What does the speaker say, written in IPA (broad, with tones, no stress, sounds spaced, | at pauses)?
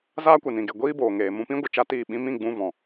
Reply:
z aː˦ kʷ ɛ˨ n ĩ˨ ɡ e˨ ɡʷ iː˦ b oː˨ ŋ eː˨ m ũ˧ p ĩ˦ ɡʷ ɨ˨ t͡ʃ a˦ t iː˦˨ ɓ ĩ˦ m ĩ˦˨ ɡ͡b ũ˧ v ɔ̃˨